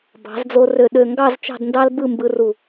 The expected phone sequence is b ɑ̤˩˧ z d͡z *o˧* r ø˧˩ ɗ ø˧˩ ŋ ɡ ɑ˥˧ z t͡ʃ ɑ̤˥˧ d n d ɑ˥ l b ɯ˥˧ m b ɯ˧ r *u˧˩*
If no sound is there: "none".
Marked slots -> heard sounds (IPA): o˧, u˧˩

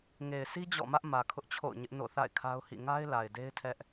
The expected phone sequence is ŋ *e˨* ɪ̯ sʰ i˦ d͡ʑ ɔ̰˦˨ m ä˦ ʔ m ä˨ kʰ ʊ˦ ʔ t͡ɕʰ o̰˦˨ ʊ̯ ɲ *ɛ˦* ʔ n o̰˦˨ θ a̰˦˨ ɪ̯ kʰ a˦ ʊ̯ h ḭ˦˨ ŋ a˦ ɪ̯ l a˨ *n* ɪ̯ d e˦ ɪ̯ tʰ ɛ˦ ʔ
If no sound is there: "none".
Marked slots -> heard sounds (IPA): e˨, ɪ˦, none

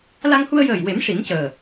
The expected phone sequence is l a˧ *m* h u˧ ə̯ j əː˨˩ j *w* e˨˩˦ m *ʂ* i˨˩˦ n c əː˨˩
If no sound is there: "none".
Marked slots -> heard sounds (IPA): ŋ, w, ʂ

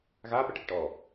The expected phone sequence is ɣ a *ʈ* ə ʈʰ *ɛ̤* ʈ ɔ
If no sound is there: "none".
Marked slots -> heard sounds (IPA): p, ɛ̤

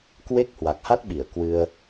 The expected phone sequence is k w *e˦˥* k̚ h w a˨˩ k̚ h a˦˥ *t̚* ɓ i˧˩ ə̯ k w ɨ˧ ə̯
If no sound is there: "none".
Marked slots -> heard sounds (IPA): e˦˥, t̚

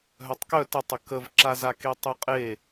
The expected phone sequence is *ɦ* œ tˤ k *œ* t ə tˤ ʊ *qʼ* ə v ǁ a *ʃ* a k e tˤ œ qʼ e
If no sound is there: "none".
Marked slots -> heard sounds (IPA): ɦ, œ, k, z

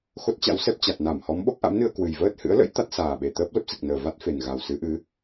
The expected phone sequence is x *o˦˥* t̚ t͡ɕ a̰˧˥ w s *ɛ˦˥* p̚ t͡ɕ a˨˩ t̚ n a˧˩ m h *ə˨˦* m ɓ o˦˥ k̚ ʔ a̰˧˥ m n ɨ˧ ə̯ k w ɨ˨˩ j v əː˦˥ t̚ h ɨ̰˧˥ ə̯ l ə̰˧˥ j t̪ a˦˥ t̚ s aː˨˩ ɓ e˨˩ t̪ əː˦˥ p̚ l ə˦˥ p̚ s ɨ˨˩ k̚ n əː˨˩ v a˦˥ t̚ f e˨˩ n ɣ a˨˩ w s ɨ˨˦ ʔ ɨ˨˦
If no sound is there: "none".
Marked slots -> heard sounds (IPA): o˦˥, ɛ˦˥, ɔ˨˦

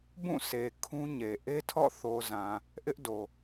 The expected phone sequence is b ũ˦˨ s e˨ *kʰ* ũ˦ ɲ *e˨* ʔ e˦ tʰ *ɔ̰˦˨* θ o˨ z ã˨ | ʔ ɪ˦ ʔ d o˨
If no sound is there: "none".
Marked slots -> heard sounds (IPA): kʰ, e˨, ɔ̰˦˨

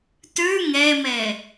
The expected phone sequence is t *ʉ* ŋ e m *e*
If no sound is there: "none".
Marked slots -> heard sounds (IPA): ʉ, e

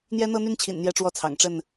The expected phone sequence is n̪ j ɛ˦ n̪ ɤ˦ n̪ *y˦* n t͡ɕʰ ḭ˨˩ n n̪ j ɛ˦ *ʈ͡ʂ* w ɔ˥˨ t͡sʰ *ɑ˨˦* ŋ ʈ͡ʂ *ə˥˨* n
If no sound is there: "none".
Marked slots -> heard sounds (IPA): y˦, ʈ͡ʂ, ɑ̰˨˩, ə˥˨

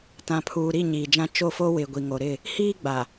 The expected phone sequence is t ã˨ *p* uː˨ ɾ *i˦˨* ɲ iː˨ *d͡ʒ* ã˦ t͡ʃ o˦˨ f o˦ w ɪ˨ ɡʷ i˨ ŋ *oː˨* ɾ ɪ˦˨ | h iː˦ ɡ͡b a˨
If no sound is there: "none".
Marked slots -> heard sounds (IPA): pʰ, i˦˨, d͡ʒ, o˨

